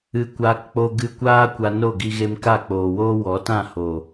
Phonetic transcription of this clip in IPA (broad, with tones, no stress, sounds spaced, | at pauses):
ɨ˧ kʷ aː˧ k k͡p o˦ ɡ ɨ˧ kʷ aː˦ kʷ a˧ n o˦˨ ɡ i˧ ɣ e˧ m k a˦˨ k͡p oː˨ w oː˦ w ɔ˨˦ t ã˦˨ h o˨